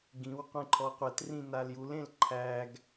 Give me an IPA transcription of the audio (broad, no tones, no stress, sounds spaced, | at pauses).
ɡ ĩ w qʷ ẽ ǃʰ ɔ qʷ ɛ t r ĩ n a l j u l ẽ l ǃʰ æ ɡ